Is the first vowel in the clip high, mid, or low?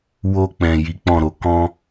mid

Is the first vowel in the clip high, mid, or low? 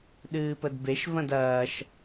high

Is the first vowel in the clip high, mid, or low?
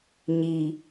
high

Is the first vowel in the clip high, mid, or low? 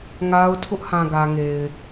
low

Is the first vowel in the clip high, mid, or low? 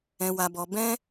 mid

